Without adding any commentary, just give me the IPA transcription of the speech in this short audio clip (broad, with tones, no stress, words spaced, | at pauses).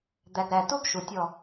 d̪æ˨ɡɾæ˨tu˦ɡ ʃu˨tʲɔ˦˨